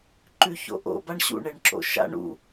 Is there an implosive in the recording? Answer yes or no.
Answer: no